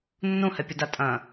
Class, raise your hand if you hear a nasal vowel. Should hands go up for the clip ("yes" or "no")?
yes